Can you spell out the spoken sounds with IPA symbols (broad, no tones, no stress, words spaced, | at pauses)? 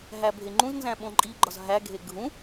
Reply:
ɦæbʱeŋ͡ǃũznzæ̃ ɓõǃʼiɡ͡ǃɒz ɦæɡʱe ɡʱũ